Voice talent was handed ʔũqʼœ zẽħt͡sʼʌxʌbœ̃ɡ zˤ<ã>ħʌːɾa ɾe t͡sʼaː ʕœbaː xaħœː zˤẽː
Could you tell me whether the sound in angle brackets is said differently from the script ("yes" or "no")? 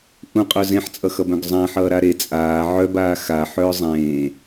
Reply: no